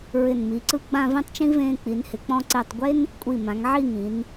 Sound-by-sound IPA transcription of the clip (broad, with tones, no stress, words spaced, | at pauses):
ɹɪ˧˩nmi˩˧ǀɯ˥˧ ɡ͡bã˥˧vĩ˥tˤt͡ʃĩ˥ vẽː˧k͡pi˩˧nhɪ˩˧k͡pɔ̃˧ ǀe˧˩tˤɡʷe˥n | kʷʼi˧˩ mã˩˧ŋʕi˥˧ŋĩ˩˧n